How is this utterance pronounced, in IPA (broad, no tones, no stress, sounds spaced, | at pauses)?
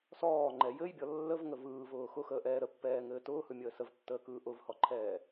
s ɔː ŋ͡ǃ ɛ j ɘ j bʲ ɔ lː ə v ŋ ə v ɯː v ʊː x ʊ x əː ʔ ɛː ɾ ə pː ɛː ŋ ɘː t ʊː h ɯ mʲ əː s ə v tː əː k ɯː ʔ ʊ v h ɔ ǃʰ ɛː